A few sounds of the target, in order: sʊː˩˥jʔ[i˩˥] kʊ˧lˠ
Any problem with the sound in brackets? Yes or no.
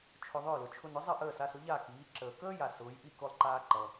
yes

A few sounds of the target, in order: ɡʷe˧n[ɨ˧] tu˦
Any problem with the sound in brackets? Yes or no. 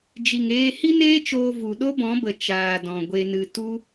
no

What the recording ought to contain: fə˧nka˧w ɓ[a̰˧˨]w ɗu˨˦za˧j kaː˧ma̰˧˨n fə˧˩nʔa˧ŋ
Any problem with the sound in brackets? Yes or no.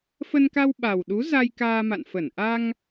yes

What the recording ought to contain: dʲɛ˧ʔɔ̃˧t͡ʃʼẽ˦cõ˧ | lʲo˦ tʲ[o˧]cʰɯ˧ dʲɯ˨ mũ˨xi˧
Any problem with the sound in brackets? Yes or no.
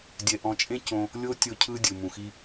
no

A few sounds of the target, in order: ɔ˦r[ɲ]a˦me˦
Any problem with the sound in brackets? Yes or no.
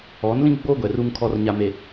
no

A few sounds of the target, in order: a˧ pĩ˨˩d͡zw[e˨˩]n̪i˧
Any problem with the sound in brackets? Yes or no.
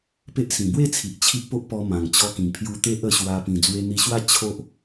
yes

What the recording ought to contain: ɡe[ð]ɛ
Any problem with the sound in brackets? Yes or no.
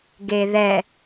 no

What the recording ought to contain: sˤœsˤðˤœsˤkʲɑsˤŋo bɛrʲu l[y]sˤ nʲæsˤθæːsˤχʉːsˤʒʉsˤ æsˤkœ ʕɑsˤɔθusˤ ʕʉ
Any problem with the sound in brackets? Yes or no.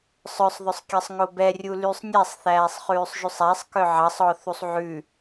no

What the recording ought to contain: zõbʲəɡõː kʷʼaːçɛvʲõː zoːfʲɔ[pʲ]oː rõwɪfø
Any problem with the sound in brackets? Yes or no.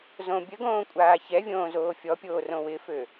no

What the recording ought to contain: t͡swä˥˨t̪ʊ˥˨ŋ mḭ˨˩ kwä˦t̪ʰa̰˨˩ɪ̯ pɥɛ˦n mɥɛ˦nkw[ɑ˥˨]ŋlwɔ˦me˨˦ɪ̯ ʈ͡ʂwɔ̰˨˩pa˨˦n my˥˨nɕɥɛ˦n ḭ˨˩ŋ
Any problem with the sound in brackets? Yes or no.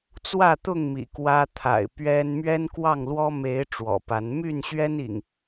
no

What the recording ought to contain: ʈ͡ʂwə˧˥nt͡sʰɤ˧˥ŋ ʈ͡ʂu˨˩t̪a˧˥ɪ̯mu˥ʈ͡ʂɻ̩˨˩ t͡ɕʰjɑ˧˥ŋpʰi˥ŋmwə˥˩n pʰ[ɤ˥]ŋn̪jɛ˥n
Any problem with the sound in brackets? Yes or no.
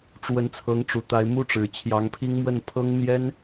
no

